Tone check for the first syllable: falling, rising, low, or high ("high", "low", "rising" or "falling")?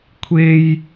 high